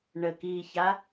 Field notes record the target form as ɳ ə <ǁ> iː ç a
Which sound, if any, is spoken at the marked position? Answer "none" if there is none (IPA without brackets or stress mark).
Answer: k